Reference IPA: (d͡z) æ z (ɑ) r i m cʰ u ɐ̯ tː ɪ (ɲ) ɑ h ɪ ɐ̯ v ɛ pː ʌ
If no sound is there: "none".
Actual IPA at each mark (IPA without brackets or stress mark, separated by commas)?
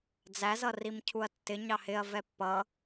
d͡z, ʌ, ɲ